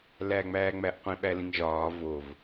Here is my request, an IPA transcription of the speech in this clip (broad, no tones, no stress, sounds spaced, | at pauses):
l æː ŋ͡m æː ŋ͡m æ ʔ qʷ ĩ ɓ æ l ĩ ŋ ʒ ɒː v o v